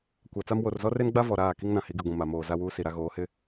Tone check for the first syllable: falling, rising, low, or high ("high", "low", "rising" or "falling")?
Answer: low